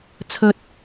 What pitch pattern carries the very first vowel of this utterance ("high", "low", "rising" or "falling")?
low